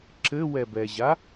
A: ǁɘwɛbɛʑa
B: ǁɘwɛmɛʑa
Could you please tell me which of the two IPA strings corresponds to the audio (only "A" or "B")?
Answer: A